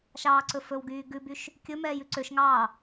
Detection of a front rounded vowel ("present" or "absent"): present